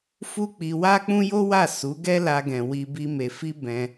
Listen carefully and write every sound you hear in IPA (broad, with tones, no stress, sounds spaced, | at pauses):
f u˦ k͡p i˧ w a˦ k͡p ũ˦ j o˦ w a˦˨ s u˨˦ ɡ ɛ˦ l a˧ ɡ ɛ̃˨ w i˧ b i˦ m e˧ f i˦ b ɛ̃˧